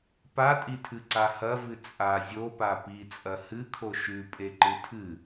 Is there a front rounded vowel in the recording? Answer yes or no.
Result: no